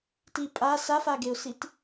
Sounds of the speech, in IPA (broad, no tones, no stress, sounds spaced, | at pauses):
t i pʼ a s a f a ɡ e ʊ̯ s i t